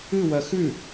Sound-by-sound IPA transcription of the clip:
ɨwɐ xʉ

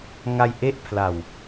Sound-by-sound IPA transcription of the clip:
ŋa˧jʔe˦˥ʔpʰla˨˩w

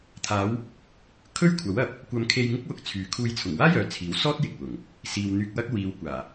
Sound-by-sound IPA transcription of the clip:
t̪ʰaː˨˧w | kʰɵ˥ɥkʷʰɐ˨˥wɐ˨p̚ | kʷɐ˧m kʰe˧jŋɪ˥k̚wʊ˨˥k̚ t͡sʰyː˨kʰuː˧j t͡sʰʊ˨˩ŋwaː˥jœː˨ t͡sʰiː˨˥wsɔː˥t̚ jɪ˨k̚wʊ˨˩ŋ | siː˨w n̪yː˧k̚wɐ˥k̚ wiː˨w kʷaː˨˩

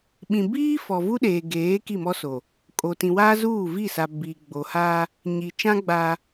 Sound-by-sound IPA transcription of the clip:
ɓĩ˨biː˦ fɔ˨vu˦ɗeː˨ɡeː˨˦ ki˦˨mɔ˦so˨ | kʼo˨tĩ˨wa˦zuː˦˨ vi˦˨sa˨ bi˨ ɡ͡bo˨ha˦ | ɲi˨t͡ʃã˦ ɡ͡ba˦

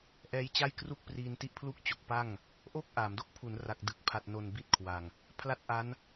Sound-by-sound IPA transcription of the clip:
ʔɛː˦˥jt͡ɕa˥˩jkru˥˩k̚priː˧n ti˥˩ʔ pʰlu˥˩k̚t͡ɕo˨˩k̚ pa˥˩ŋ | ʔoː˥˩k̚ʔaː˩˦mdo˥˩k̚ pʰu˩˦nra˨˩k̚dɯ˨˩k̚ pʰa˨˩t̚no˨˩n bi˥˩t̚kʰwa˨˩ŋ | pʰla˥˩t̚ʔa˦˥n

